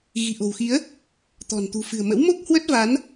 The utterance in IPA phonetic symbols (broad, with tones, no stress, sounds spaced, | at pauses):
ɣ i̤˨˩ ʔ o̤˨˩ w x i˨˦ ə̯ | t̪ ɔ̤˨˩ n t̪ ṳ˨˩ f ɨ̤˨˩ ə̯ m ə̰˧˥ w m o˦˥ k̚ h w ə˦˥ t̚ v a˨˦ n